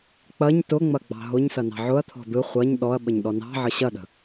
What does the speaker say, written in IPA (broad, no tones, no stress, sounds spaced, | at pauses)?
k͡p ɐ ɲ t ʊ ŋ͡m ɐ ɡ͡b ɑ̤ ɦ ʊ ɲ s ɐ n ɑ̤ ʕ ʊ ɐ̯ t̪ʰ ɔ̤ d̪ ɯ χʷ ɐ ɲ ɗ ɔ ɐ̯ ɓ ə ɲ ɗ ɔ n ɑ̤ ʕ ə ɕ ɐ ɗ ə̤